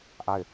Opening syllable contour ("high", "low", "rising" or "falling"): falling